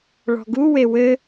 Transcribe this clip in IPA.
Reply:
ɭ ɔ̤ ɡ u w e w ɘ

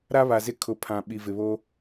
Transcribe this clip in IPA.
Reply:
ɾ a˦ β a˨ z ɪ˦ kʰ ʊ˨ pʰ ã˨ ɓ i˨ v ɪ˨ β o˦

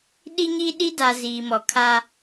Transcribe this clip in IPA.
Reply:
ɗ i˦ ɲ i˦ ɗ i˦ d a˨ z iː˨ m ɔ˨ kʰ aː˦

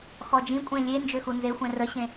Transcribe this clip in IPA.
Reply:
x ɔ d͡ʒ ĩ kʷʼ ẽ lʲ e n d͡ʒ ø x u n z e xʷ ɛ̃ r ə ɕ ẽ

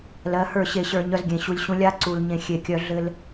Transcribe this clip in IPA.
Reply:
l ɜ˨˦ h ə˞˦˨ ɕ e˨ ɕ ə˞˨ ɲ œ˦ z ɡʲ ẽ˨ ɕ u˨ lʲ ɕ ũ˦ lʲ a˦ ǀ u˨ l ɲ ẽ˨ xʲ e˨ kʲ œ˨ ɮ ɘ˦ l

